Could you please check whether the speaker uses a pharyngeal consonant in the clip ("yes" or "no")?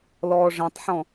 yes